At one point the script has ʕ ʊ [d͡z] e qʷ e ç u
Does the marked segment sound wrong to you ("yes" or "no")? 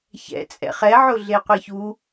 yes